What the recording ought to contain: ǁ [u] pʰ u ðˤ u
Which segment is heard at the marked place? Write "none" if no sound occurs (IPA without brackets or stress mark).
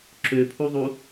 ø